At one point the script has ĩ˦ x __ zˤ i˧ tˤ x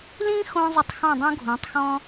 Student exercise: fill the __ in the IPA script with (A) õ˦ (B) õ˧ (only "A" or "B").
B